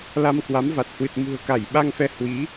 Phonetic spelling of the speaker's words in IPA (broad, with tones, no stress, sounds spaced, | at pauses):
l a˧ m k w a˨˦ m v a˨˩ t̚ h w ɨ˨˩ t̚ m ṳ˨˩ ə̯ k a˧˩ j ɓ a˧ ŋ f ɛ˨˦ h w i˨˦